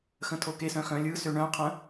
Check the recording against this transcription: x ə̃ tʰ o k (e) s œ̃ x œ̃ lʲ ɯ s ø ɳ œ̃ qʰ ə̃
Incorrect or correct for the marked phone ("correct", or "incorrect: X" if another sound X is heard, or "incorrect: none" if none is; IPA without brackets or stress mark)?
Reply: correct